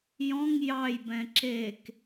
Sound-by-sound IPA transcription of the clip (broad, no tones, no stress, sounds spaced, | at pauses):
j ɔ̃ ŋ j ɑ j b ɛ̃ ǁ e k